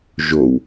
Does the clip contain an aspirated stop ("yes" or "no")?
no